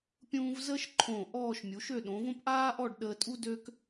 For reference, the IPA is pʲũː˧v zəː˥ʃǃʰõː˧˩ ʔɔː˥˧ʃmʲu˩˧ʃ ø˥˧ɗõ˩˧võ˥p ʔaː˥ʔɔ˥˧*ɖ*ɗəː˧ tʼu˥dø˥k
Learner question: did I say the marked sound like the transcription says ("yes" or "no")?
yes